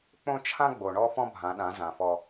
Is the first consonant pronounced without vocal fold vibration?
yes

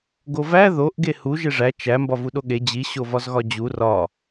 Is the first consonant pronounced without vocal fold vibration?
no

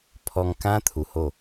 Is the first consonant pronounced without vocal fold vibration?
yes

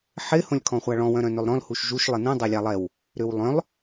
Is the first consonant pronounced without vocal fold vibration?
yes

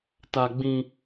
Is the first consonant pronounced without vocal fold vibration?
yes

